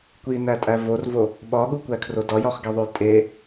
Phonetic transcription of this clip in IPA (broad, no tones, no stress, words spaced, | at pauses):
kʷinætʼæ vorvo | ɓɒɠukʷækʰro dɒjɒχɡeðˤoj tʼe